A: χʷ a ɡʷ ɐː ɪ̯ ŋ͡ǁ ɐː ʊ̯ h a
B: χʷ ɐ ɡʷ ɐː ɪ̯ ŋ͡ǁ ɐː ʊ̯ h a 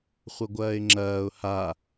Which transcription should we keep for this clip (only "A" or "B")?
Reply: B